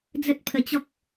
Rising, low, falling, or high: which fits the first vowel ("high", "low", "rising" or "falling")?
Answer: high